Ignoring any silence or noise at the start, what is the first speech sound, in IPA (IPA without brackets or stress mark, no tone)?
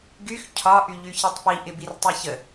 ɡ